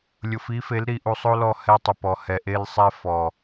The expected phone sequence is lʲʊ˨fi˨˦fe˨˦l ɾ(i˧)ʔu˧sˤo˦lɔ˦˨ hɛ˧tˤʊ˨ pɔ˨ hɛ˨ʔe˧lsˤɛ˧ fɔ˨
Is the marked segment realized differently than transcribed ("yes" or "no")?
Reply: no